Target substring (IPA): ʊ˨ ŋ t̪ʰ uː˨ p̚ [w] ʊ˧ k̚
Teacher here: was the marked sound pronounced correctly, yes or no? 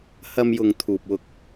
yes